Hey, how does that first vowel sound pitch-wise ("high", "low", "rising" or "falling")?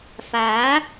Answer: rising